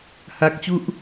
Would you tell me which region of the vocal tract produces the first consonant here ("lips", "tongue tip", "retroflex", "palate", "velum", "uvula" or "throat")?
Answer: throat